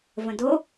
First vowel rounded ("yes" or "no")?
no